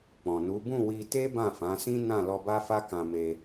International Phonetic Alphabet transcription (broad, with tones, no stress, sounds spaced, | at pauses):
k͡p ɔ̃˨ n u˨˦ b ũ˦˨ w i˧ t e˦ b ã˦˨ f ã˨˦ s ĩ˦ n ã˦˨ l ɔ˧ b a˦ f a˦ k ã˧ m e˧